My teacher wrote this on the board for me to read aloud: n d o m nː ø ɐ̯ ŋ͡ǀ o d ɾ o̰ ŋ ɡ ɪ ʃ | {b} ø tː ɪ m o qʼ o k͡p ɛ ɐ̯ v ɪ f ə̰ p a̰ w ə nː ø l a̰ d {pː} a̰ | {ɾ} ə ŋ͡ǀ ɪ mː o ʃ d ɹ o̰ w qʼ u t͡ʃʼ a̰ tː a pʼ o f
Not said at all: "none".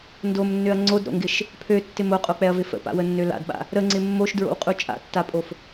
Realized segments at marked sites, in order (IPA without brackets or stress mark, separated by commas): pʰ, ɓ, ɾ